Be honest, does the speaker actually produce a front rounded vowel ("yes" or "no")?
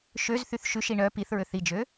yes